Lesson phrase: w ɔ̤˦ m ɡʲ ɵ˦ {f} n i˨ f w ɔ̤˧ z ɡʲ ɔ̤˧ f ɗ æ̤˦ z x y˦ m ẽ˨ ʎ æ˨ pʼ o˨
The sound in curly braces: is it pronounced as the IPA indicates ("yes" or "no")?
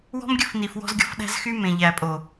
yes